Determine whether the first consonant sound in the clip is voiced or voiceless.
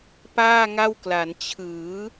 voiceless